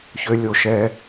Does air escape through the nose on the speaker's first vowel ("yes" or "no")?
no